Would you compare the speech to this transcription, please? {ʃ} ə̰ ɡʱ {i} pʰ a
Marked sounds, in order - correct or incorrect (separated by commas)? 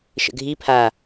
correct, correct